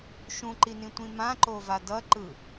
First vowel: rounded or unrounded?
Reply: rounded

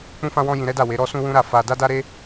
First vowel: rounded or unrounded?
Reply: rounded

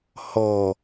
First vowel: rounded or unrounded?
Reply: rounded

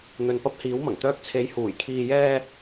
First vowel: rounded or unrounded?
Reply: rounded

